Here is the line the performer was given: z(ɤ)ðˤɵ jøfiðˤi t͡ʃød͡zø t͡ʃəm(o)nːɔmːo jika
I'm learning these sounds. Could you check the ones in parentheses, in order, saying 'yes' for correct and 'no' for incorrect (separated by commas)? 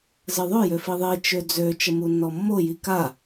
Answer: no, no